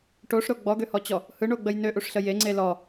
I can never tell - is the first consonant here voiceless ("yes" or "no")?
yes